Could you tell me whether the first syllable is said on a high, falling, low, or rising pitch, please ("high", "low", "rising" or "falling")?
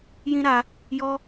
high